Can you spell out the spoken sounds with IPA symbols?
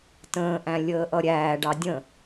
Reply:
t ə̃ː ʔ æ̃ lʲ əː ʔ ʌ ɾʲ æː ɖ ɑ dʲ ə̃

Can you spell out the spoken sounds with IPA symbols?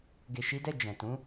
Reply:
ɡ e˨ ʃ i˨˦ d ɛ˦˨ d͡ʒ ɛ̃˨ t ũ˨˦

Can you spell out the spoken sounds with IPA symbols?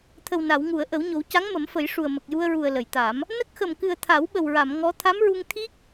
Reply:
t̪ʰ ə˨˩ w n a˨˩˨ w ŋ u˨˩˨ ə̯ ʔ ə˨˩˦ w ɲ o˨˩˦ w c a˧˥ ŋ m ə˨˩˦ m f ə˨˩˦ j ʂ u˨˩ ə̯ m ə˨˩ k̚ j u˧ ə̯ ɹ u˨˩ ə̯ l ə˨˩˨ j t̪ a˨˩˦ m | n ə˦˥ k̚ x ə˨˩ m k ɨ˨˩ ə̯ t̪ʰ a˨˩˦ w ɓ ə˨˩ w ɹ a˨˩˨ m ŋ ɔ˧˥ t̪ʰ a˧˥ m ɹ u˧ ŋ t̪ʰ i˦˥ k̚

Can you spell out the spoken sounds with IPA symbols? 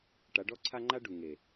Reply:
ʈ a˨˦ ɖ ɔ˦ ǀʰ a˦ ŋ͡ǃ a˦ ɖ u˨ ŋ e˨

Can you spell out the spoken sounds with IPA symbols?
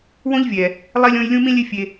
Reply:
w õ˦ ʎ vʲ ɛ˨ | lˠ i˨ lʲ õ˨ j lʲ ũ˦ m ĩ˦ lʲ e˦ fʲ e˧

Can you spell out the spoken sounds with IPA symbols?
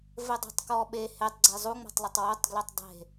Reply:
v ɘ dˤ ɛ̤ tˤ k ɔ ɓ e h e tˤ ɡ͡ǀ e zˤ u ŋ͡m ɔ̤ tˤ lˠ ɐ tˤ w o tˤ ɡ l ɛ tˤ dˤ e̤

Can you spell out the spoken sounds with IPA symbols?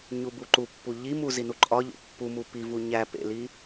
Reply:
ɲ u b u ǃ u pː u ʎ i m u z i n u ǃʼ ɒ ʎ o̰ pː u m u p i v u ɲ æ p ḛ l i

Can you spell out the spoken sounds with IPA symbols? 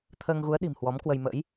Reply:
t̪ʰ əː˧ ŋ ɣ u˨˦ ə̯ ɗ i̤˨˩ m h w ɔ˨˦ m k w ə˧ j m ə̰ː˧˥ j

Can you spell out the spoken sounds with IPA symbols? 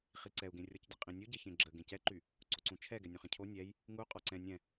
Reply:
χ i ǀ ɛ u̯ ɡ ẽ rʲ ɔ c dʲ ə qʼ ĩ nʲ u ɟ e ç ẽ ɡ͡ǁ ə ɡ ẽ c ɛ ǃ y | ǀ o ǀ ũ t͡ʃʰ ɛ ɡ ɛ nʲ õ χ ẽ cʰ o nʲ ɛ j | ŋ u qʼ ɔ ǀ ɛ̃ nʲ ɛ̃

